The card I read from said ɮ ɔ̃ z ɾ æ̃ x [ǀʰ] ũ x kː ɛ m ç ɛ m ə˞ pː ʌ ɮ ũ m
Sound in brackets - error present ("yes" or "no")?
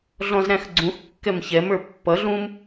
yes